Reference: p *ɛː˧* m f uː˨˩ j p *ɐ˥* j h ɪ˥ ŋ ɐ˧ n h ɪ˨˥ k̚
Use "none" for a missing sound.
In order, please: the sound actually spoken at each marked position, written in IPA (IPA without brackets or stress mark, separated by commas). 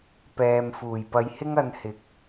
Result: ɛː˨, ɐ˨˧